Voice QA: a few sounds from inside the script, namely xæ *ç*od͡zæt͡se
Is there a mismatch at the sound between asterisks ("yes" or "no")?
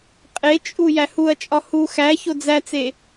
no